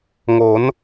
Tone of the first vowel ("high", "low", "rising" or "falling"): rising